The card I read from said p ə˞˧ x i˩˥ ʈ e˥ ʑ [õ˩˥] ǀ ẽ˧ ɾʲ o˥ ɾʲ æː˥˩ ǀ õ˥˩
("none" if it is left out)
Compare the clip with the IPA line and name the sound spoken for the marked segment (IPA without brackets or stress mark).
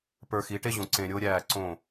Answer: õ˩˥